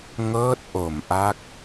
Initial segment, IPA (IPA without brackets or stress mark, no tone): ŋ